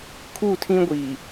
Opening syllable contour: falling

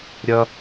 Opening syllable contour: low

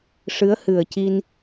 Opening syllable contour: rising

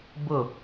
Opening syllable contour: falling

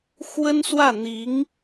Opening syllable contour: high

